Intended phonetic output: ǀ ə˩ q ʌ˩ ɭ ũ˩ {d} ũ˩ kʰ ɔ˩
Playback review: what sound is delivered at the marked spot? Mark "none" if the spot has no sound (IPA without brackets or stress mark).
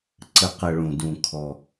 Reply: d